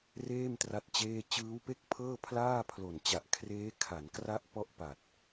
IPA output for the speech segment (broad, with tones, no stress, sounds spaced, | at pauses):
r eː˥˩ m t r a˥˩ t̚ t͡ɕ eː˥˩ t͡ɕ ɯː˦˥ w p e˥˩ k̚ pʰ ɤː˥˩ pʰ l aː˥˩ pʰ l o˨˩ n t͡ɕ a˨˩ ʔ kʰ r eː˦˥ kʰ a˩˦ n k r a˦˥ ʔ p ɔ˦˥ ʔ p a˨˩ t̚